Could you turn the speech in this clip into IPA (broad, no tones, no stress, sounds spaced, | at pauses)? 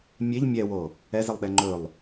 mʲ e ʎ mʲ ɛ w o | ɛ z ə lˠ ɗ ɛ ŋ͡ǃ ɵ lˠ